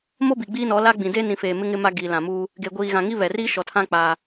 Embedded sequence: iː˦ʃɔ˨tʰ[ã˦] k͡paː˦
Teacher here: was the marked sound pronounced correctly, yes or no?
yes